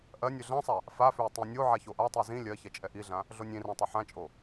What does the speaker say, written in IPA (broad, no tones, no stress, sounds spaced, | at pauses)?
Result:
ʔ ɜ nʲ ʏ ɮ ã sˤ a | f a f ʏ ə̯ tˤ ĩ nʲ o ʕ a ç o ʔ a tˤ i z ĩ lʲ ɜ ç ɛ t͡ʃʼ ɛ ʔ i ɮ ã | ɮ o nʲ ĩ r ã tˤ ɵ ħ ã t͡ʃʼ o